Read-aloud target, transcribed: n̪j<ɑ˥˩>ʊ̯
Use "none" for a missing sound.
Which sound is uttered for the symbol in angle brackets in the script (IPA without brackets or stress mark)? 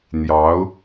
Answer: ɑ˧˥